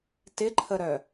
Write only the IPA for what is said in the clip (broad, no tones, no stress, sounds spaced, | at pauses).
t ɪ ǃʰ ə ɾ œ